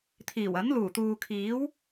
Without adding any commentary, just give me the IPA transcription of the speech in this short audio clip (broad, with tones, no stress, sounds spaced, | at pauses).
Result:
t̪ʰ iː˨˩ w ɐ˨˥ n l uː˨˩ t̪ uː˨ kʰ iː˨˥ w